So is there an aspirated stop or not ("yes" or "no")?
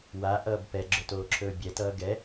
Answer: yes